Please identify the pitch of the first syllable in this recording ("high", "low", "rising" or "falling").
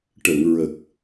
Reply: low